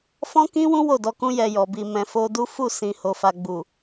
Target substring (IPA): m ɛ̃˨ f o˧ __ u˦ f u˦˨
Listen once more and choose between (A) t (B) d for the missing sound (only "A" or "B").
B